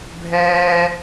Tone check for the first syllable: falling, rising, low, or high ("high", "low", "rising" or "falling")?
high